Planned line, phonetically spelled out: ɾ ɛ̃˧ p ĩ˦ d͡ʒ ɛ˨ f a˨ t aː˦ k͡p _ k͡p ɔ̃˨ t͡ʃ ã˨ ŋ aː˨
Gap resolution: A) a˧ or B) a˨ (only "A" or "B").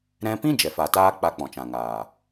A